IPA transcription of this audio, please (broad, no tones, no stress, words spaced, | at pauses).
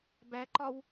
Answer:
bæǃɒw